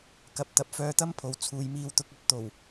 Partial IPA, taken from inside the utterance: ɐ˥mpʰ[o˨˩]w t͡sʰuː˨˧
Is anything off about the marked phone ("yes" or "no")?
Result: yes